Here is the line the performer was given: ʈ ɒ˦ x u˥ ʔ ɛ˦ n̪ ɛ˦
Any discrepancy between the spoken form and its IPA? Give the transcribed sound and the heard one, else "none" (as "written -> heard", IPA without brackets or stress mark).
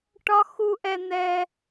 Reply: none